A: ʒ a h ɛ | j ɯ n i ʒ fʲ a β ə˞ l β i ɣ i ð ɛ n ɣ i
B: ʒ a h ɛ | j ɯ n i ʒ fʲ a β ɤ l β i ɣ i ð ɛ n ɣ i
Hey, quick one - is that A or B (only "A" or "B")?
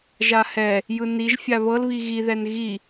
B